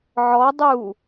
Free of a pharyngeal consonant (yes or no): no